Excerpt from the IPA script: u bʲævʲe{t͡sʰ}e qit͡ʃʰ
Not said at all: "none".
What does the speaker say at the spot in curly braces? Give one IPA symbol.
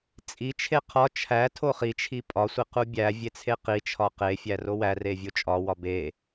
t͡sʰ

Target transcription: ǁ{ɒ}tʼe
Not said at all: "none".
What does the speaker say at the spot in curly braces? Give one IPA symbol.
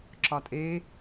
ɒ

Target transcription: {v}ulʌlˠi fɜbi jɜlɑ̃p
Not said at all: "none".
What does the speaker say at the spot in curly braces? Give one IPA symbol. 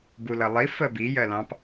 b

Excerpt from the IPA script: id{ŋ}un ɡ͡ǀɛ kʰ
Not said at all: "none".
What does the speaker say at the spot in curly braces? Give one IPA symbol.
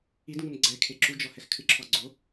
ŋ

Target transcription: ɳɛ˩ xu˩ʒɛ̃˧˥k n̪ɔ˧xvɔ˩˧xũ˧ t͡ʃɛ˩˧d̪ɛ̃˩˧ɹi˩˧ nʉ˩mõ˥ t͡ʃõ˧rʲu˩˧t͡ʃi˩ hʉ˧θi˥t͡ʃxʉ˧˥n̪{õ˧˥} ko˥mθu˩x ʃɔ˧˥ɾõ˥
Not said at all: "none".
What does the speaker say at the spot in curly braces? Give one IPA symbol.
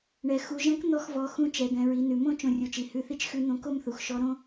õ˧˥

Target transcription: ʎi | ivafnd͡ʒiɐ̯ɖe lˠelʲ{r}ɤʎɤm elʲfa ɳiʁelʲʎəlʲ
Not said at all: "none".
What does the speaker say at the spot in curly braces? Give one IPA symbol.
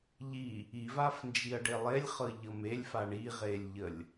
χ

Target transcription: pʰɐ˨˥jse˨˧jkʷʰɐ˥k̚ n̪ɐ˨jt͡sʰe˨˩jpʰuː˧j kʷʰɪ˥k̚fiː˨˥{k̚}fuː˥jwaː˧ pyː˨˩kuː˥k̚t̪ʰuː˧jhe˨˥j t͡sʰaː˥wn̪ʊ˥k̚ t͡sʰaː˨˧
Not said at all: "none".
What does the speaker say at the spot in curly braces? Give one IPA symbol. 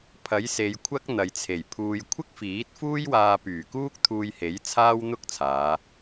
t̚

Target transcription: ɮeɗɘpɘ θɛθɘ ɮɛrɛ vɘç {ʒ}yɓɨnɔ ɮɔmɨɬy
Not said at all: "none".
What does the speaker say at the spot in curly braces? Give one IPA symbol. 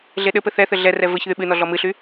ð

